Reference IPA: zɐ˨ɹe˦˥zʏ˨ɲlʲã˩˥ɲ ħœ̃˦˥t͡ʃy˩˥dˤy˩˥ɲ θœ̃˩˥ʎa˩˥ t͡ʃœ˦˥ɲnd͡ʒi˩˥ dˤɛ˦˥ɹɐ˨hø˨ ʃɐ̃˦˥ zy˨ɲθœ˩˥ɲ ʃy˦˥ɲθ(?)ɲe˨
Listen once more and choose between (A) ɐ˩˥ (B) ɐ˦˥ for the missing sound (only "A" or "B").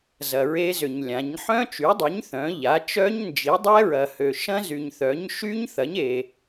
A